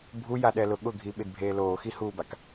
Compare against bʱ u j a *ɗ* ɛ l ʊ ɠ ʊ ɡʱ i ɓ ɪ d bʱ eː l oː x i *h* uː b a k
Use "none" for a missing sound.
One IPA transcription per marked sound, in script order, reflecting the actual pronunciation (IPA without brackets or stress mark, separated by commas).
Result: ɗ, h